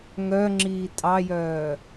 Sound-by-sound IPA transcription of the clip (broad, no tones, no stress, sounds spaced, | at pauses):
ŋ œ ŋ͡ǁ iː tʼ ɑ j œː